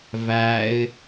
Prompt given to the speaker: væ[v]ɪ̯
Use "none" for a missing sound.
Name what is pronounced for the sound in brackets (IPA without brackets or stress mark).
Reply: none